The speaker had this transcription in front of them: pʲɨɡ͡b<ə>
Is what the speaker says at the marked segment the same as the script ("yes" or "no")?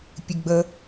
yes